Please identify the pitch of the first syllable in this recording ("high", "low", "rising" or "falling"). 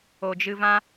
low